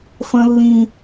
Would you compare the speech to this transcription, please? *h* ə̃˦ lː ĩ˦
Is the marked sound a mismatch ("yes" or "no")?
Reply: yes